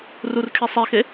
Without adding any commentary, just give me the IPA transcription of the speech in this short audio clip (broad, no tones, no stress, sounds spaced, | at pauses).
r u r kʰ i sˤ e x e